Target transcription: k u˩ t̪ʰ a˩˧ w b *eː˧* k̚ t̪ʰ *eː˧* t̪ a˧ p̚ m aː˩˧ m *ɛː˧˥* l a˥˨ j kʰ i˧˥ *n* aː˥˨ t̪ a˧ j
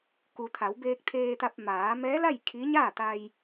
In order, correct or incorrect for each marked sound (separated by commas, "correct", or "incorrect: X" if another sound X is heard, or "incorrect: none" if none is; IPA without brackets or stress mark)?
correct, correct, correct, incorrect: ɲ